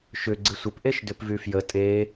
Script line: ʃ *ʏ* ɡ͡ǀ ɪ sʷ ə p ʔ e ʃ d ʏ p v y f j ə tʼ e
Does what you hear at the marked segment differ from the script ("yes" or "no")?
no